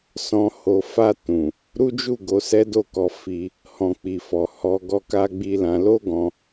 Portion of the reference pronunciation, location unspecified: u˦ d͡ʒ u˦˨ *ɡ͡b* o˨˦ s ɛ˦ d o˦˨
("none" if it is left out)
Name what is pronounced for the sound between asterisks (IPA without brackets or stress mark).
ɡ